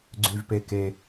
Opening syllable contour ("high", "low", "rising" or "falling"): low